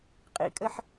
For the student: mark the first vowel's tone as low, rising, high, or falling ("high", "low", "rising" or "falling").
high